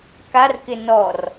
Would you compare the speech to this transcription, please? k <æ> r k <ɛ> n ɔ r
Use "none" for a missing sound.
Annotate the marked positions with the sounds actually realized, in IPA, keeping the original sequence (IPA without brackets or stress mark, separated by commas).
a, ɪ